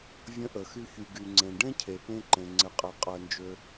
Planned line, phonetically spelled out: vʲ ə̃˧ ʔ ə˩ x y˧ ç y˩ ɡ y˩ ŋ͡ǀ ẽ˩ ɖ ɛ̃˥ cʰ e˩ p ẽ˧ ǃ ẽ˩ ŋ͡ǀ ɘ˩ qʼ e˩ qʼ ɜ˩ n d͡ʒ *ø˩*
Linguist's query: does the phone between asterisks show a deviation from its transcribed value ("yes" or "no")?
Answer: no